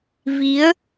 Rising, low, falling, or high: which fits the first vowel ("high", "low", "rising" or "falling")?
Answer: rising